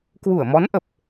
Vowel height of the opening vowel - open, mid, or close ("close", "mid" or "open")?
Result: close